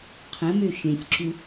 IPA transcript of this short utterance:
qʰ ə̃ m ø ʃ ẽ sʲ ǁ u

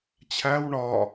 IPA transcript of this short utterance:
t͡ɕʰ æ w ɳ ɒ

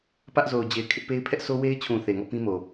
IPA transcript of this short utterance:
p ä˦ ʔ z o˨ ʊ̯ d͡ʑ e˨ ɪ̯ kʰ ɪ˦ ʔ p e˦ ɪ̯ pʰ ɛ˦ ʔ s o˦ w e˦ ɪ̯ t͡ɕʰ ũ˨ θ e˨ ŋ ɔ˦˨ p ĩ˦ m o˨

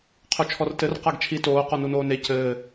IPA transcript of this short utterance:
qʰ o t͡ʃʰ ɔ r t ɘ r q a ɡ t͡ʃʰ i t oː q ɔ n u n oː n e c ɘː

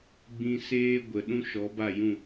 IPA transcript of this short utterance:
ɡ͡b ĩ˧ s eː˦ ɡʷ ə˨ ɗ ũ˦ ʃ ɔ˨˦ b a˦˨ j ũ˦˨

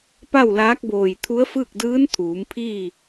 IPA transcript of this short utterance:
p a˥˨ w l aː˧˥ k̚ b oː˧˩ j t̪ʰ u˧˥ ə̯ f ɯː˥˨ k̚ d ɯː˧˥ n t̪ʰ uː˩˧ m pʰ iː˥˨

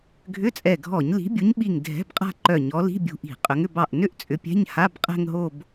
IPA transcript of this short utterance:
ɡʱ ʏ˧˥˧ t͡sʼ ɛ˧˩ ɡʱ ɔ˧˩˧ ɲ l i̤˨˦ bʲ u˨˦ ɲ ɓ i˧˩ ŋ dʱ ɛ̤˧˥˧ b qʼ a̤˥˧ ǃ œ˧˩ ɲ ɔ˨˦ l i̤˧˥˧ bʲ ṳ˧˩ ʔ i̤˧˩˧ qʼ ʏ˨˦ ŋ ʏ˥˧ b ɑ˧˩ ʔ n ʏ˥˧ ʔ t͡sʼ ʏ˨˦ pʲ ɛ̤˧˥˧ ɲ h a˧˥˧ b qʼ ɛ̤˥˧ ŋ ɦ o˥˧ b

